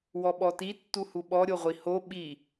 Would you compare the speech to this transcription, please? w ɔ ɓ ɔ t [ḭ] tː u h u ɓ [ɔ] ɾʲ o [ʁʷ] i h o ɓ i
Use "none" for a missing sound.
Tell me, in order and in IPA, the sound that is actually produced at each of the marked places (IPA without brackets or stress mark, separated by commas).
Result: i, ɔ, ʁʷ